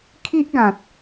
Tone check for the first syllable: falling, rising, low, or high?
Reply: high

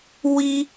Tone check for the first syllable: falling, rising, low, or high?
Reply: high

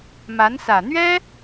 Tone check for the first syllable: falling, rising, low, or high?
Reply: rising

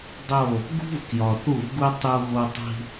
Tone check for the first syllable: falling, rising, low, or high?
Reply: falling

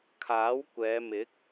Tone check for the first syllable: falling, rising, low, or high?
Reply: rising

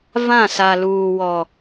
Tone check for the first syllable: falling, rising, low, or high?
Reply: falling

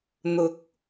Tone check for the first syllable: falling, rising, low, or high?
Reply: rising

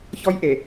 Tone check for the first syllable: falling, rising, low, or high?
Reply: high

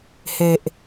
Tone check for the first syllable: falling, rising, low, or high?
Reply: low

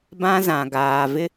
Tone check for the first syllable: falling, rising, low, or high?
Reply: high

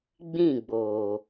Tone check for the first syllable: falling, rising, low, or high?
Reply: falling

